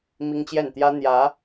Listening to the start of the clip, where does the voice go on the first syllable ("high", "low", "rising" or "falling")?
high